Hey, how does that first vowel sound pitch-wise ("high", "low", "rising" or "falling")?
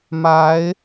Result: rising